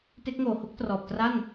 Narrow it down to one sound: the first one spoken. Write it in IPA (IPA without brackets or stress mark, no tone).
t